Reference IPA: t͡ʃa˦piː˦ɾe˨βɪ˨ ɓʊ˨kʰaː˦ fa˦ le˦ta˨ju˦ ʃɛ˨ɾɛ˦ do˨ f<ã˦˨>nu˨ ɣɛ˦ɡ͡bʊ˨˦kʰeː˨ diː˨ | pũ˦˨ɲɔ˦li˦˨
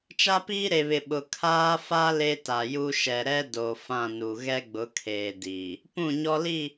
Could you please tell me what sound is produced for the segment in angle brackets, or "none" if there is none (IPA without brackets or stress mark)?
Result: ã˦˨